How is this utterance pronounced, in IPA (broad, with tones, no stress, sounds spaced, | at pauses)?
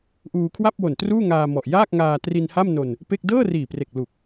ʔ uː˧ kʰ w a˥˩ p̚ w o˨˩ n t r uː˥˩ ŋ aː˧ m ɔ˨˩ ʔ j aː˥˩ k̚ ŋ aː˧ t r i˧ n h a˥˩ m n o˧ n | p e˥˩ k̚ d ɤː˥˩ r iː˨˩ p r e˨˩ k̚ l u˨˩ k̚